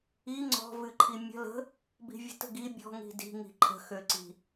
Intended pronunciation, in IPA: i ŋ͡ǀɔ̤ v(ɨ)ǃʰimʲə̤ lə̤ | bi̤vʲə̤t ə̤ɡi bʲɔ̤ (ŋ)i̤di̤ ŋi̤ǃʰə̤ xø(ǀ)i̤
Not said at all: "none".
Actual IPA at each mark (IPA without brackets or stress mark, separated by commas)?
ɨ, ŋ, ǀ